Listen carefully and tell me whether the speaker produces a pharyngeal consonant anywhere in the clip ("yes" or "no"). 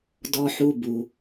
yes